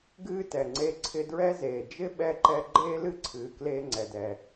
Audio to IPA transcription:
ɡ ɨː˦ t ɛ˨ ŋ͡ǀ e˧ ǀʰ ɪ˧ d ɹ ɛ˦ z eː˨ d͡ʒ ɪ˦ ɓ ɛ˧ ǃ ɛ˧ ɡ͡ǃ eː˦ l ɨ˦ ǀʰ ɨː˨ k l eː˧ ŋ͡ǀ ɛ˨ d ɛ˨

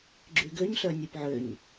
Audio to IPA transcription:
ɡ͡ǁ y ɡ ø ɲ ɬ œ nʲ e p ʕ ø ɲ

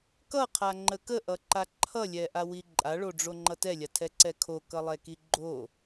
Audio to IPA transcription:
k ʌ qʰ a ŋ͡ǃ ə k ə ʔ ʌ ǃ a ǃʰ ʌ lʲ ɛ ʔ a w i ǃʼ a ɭ o ɖ͡ʐ o ŋ͡ǃ ʌ t ɛ lʲ a tʰ ɛ ǀ ɛ kʰ o k ʌ lˠ ɛ k i ɡ͡ǃ o

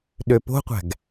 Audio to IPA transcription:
ɗ ø p o̤ qʷ æ̤ ɡ

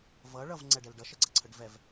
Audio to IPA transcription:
v ʌ ɭ ʌ v ŋ͡ǀ ɛ ɖ ɛ l ɖ ʌ ʃ ə ɡ͡ǀ ʌ ǀʰ ə ɖ v ɛ v

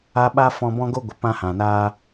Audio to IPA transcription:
a˧ ɓ a˦ f ɔ̃˧ b ɔ̃˦ ɡ o˦ ɡʷ ə˨ p ã˦ h ã˨ n aː˦

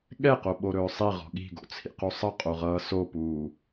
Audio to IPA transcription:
ɠ ɛ q o ɓ o ɾ ɵː sˤ i ʁ ɔ̤ ɠ i̤ ɡ o̰ t͡sʰ ḭ q u sˤ ʌ qʼ o ʁ ʌː s o p uː

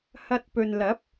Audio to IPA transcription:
h ɐ˧ t̚ p ɵ˨ n l ɐ˨˥ p̚

